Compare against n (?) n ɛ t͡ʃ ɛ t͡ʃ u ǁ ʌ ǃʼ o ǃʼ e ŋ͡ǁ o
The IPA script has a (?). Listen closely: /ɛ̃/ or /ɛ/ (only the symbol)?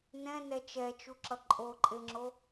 ɛ̃